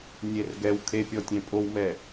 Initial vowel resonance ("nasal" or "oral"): oral